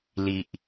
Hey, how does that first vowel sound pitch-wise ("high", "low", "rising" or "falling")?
low